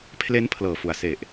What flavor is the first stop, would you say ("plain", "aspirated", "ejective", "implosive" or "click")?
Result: aspirated